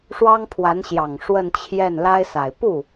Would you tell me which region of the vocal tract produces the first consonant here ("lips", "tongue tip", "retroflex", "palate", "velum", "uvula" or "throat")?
retroflex